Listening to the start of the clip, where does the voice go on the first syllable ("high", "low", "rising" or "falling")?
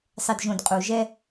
low